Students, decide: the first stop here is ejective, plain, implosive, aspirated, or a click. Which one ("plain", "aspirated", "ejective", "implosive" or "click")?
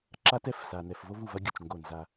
click